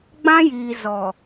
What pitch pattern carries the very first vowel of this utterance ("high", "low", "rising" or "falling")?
high